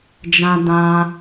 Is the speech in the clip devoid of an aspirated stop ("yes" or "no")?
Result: yes